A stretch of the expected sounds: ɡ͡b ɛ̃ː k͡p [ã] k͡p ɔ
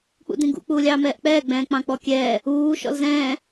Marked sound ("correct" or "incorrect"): incorrect